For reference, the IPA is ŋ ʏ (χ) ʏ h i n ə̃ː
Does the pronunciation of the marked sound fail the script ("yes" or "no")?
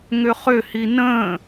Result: no